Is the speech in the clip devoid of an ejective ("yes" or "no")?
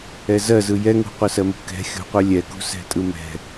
no